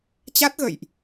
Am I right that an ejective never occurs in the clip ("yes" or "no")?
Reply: yes